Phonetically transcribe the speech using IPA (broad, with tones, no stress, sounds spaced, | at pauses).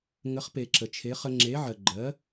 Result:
ŋ ə˩˥ χ p e˩ ǁ ə˩ t͡ʃʰ e˩˥ χ ə˧ ŋ͡ǁ e˩˥ ʕ ɜ˩ ɡ͡ǃ ɜ˩˥